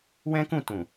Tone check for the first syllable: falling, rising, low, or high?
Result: high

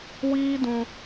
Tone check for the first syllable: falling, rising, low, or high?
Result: high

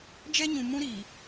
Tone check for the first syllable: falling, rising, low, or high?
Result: high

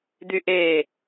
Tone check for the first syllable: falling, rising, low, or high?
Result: high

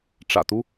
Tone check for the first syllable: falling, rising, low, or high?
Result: low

